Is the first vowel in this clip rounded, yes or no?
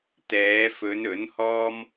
no